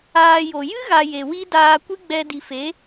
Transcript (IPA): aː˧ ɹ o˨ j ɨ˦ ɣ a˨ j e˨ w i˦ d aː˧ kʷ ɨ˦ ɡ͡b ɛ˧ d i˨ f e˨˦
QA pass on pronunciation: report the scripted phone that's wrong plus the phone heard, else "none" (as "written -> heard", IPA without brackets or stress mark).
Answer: ɹ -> j